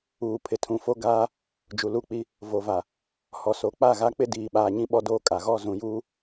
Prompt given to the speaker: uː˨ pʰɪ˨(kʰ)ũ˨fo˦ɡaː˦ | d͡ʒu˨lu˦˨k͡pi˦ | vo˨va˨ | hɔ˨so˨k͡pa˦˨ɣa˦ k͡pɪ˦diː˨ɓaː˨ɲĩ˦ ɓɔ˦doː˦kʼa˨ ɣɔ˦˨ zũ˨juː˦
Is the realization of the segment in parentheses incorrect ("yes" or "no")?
yes